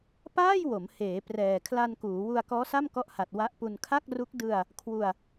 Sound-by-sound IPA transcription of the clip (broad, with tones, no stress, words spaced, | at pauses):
paː˥˩jwo˩˦m heː˩˦ prɛː˨˩kʰla˧nkuː˩˦wu˧a̯ kɔː˦˥sa˥˩mkɔ˦˥ʔha˨˩t̚ wa˦˥ʔpu˧n kʰa˥˩k̚ru˦˥k̚ dɯ˧a̯ | kʰwu˧a̯